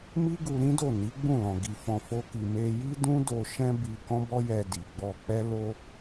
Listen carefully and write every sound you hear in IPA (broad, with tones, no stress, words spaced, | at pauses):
mi˦ɡu˧ ɾĩ˦do˦˨ ni˨˦ɡ͡bũ˦˨lɔ̃˨ ɡi˧fɔ̃˧fo˦ki˧ me˧ ji˦dũ˦do˧ ʃɛ̃˦bi˧ kɔ̃˦bɔ˦jɛ˧di˨ ɡ͡bɔ˧k͡pɛ˦ lo˦